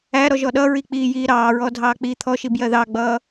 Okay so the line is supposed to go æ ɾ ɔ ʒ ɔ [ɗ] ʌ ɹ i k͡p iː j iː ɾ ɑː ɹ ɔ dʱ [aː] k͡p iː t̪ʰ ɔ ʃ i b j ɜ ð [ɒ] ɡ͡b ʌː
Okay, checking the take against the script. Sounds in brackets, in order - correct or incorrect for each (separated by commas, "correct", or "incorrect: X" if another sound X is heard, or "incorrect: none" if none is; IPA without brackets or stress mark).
correct, incorrect: ɑː, incorrect: ɑ